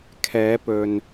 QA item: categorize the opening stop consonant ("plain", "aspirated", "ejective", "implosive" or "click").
aspirated